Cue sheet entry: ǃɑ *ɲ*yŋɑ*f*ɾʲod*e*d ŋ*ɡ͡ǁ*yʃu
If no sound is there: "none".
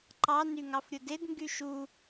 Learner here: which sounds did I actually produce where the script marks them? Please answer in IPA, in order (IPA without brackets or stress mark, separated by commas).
n, f, e, ɡ